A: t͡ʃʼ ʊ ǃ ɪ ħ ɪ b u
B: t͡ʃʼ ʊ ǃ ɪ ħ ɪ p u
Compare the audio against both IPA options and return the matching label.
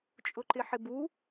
A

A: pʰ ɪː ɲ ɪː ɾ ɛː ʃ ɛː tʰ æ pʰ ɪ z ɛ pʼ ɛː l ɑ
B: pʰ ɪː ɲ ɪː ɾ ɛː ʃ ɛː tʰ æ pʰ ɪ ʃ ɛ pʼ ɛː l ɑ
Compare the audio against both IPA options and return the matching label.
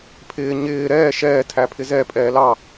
A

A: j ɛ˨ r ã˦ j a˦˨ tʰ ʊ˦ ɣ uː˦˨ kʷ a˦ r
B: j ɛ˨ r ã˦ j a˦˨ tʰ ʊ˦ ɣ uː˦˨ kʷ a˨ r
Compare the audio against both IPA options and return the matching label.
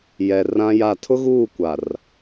B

